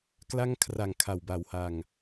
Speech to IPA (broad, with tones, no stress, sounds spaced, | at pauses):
k l a˥˩ ŋ kʰ r a˨˩ ŋ kʰ a˨˩ w b a˨˩ w h a˨˩ ŋ